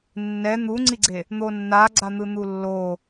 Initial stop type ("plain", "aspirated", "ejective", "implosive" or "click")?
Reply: click